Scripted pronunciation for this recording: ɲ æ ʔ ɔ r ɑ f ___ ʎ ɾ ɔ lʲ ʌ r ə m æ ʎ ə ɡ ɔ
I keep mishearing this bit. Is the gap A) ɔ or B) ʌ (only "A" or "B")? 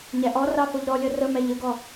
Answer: A